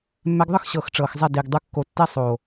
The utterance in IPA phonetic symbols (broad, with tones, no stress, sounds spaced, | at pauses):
mː ɛ˧ ɡ ðˤ ɯ˦ x ɕ ɤː˨ x ʈ͡ʂ ɤː˨ x zˤ ɛ˦˨ d e˨ ɡ dˤ ɯ˧ kː o˧ tː ɛ˦ sˤ oː˨